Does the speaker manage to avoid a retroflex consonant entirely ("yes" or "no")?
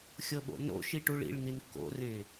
no